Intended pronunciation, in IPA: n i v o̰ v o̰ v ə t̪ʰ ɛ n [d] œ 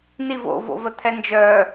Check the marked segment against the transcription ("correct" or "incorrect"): incorrect